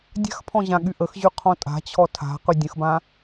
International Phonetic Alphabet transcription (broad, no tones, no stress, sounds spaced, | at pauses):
dʲ a̤ x pʰ ɔ̃ ʑ ã ɠ y ʔ ə x ʑ y qʰ ɔ̃ tʼ a̤ t͡ɕʰ ɔ tʰ a̤ q y dʲ ə̃ x b ã